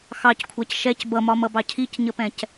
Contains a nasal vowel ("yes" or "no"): yes